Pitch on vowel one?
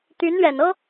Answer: rising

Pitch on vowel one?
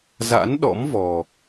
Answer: rising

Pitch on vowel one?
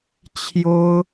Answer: high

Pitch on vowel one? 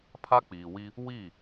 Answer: high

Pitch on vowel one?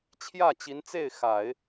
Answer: falling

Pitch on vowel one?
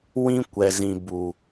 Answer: high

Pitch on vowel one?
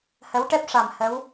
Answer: rising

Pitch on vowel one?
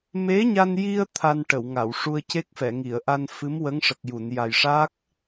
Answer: rising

